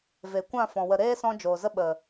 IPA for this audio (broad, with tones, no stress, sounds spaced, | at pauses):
v e˨ kʷ ã˦˨ f ɔ̃˨ w ə˨ ɾ eː˦ s ɔ̃˧ d͡ʒ oː˨ z ə˦ ɓ ə˨